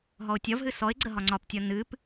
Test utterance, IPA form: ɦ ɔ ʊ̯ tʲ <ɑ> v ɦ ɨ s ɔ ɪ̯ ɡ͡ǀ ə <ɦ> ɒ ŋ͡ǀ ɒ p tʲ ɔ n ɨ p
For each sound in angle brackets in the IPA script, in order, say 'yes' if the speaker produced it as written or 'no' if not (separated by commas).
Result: no, yes